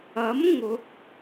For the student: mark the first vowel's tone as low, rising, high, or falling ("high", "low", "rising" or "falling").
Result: rising